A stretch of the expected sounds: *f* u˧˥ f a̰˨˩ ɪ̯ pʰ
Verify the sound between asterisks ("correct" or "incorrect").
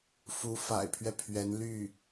correct